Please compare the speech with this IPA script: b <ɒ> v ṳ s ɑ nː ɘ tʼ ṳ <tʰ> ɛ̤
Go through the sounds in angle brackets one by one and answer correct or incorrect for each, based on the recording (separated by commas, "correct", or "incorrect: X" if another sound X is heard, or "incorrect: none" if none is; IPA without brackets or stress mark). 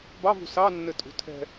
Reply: incorrect: ɑ, correct